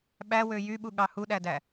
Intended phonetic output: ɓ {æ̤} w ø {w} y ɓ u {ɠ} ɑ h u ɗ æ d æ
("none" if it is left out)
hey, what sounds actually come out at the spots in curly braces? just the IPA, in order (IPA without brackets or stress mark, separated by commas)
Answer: æ, j, ɠ